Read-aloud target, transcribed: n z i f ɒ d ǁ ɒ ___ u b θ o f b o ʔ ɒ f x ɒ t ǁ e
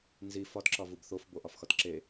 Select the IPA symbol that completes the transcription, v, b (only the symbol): v